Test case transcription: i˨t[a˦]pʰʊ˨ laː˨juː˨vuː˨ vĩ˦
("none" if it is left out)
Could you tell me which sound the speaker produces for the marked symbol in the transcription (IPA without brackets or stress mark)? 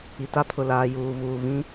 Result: a˦